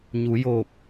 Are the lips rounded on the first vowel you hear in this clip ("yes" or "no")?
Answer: yes